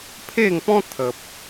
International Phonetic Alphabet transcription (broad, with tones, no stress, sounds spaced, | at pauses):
pʰ e˥˧ ŋ p ɔ̃˦ t̪ʰ ə˨ p̚